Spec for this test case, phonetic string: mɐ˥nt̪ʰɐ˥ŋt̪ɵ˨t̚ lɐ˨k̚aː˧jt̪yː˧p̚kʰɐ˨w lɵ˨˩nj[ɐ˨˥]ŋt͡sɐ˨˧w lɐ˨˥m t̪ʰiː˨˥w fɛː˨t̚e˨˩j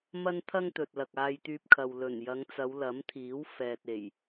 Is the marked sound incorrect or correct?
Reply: incorrect